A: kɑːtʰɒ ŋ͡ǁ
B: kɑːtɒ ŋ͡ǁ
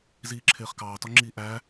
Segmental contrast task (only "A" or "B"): B